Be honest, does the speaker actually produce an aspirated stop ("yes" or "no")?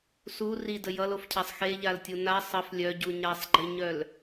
yes